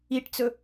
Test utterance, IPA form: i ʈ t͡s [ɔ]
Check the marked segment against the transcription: incorrect: ɵ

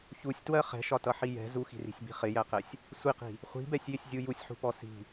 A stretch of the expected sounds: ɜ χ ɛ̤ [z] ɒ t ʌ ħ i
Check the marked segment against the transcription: incorrect: ʃ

